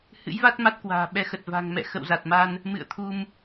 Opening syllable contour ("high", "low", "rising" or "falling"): rising